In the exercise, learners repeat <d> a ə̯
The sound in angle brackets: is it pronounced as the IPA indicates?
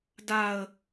yes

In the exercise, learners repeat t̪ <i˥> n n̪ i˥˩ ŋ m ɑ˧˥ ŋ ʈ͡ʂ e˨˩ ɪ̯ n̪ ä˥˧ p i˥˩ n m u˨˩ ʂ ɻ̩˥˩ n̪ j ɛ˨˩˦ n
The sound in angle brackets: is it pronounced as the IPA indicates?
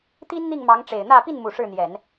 yes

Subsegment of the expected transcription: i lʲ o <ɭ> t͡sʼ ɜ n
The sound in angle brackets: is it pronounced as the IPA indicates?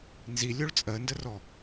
yes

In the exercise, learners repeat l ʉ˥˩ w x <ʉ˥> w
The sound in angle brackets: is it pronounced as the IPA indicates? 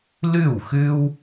yes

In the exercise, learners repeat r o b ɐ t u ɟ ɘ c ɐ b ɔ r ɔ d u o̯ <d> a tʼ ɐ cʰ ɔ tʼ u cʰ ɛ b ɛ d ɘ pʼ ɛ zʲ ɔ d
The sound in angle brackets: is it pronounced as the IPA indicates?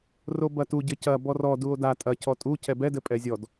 yes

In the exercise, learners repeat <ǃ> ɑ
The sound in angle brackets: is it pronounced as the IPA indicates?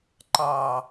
yes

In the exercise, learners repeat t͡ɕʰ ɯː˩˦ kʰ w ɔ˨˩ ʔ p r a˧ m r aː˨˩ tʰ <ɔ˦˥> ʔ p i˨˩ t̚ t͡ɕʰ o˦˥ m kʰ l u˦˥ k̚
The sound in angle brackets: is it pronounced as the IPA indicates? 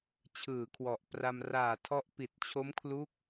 yes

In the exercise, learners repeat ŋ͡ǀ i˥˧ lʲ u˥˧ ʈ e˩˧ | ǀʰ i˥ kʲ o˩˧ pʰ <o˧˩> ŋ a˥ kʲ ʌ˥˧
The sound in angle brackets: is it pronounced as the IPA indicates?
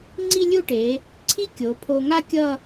no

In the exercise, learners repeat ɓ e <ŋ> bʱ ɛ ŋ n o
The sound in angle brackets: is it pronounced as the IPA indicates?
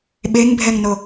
yes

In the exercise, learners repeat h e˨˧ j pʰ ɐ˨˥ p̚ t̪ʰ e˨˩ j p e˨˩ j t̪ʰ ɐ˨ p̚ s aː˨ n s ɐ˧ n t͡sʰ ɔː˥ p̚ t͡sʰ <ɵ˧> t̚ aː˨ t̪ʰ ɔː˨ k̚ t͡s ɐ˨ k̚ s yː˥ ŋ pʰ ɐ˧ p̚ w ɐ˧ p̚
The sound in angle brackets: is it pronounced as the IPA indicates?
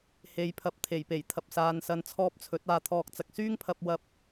no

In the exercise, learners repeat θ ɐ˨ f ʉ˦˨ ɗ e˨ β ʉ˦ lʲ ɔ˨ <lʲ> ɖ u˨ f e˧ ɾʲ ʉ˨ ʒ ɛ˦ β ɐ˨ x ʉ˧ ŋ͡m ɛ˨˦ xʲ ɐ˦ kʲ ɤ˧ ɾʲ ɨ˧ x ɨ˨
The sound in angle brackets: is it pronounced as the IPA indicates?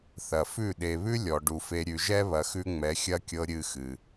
no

